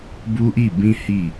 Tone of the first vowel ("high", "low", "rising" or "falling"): high